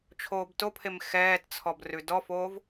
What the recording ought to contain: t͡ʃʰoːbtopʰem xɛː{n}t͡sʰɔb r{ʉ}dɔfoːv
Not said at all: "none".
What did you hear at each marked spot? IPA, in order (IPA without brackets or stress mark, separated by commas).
t, ʉ